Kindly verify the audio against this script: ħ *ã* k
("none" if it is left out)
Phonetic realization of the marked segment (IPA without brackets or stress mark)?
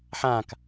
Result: ã